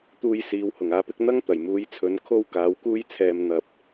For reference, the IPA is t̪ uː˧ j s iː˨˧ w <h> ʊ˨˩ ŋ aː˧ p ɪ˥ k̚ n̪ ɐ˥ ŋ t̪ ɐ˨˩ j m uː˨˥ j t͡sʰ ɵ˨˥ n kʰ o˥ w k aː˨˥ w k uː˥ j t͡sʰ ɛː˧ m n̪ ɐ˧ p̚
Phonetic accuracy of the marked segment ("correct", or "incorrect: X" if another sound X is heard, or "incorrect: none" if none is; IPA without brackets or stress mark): correct